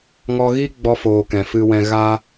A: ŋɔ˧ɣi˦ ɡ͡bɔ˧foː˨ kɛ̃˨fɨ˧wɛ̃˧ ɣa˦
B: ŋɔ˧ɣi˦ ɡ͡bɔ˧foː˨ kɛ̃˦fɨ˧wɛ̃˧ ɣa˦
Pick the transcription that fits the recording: A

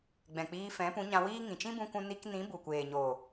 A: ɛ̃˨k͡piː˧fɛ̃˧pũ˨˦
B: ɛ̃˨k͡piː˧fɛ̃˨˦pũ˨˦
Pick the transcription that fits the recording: B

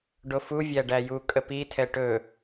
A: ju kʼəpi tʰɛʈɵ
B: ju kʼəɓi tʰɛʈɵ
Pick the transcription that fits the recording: A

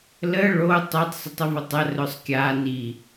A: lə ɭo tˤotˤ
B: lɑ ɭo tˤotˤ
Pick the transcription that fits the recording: A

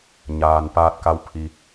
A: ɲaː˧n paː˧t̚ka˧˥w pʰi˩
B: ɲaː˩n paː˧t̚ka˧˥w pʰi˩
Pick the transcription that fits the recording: B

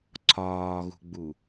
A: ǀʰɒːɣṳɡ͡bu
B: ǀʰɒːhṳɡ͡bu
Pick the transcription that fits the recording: A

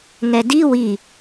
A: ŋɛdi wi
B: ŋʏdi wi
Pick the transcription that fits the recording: A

